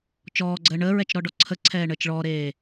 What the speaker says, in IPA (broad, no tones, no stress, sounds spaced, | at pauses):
t͡ʃ ɔː ɡ͡ǀ əː ɳ əː ɹ ɛ t͡ʃ ɾ ɔ ɖ ɔ ǀʰ ə ǀʰ ɛː ɳ əː t͡ʃ ɭ ɔː ɾ eː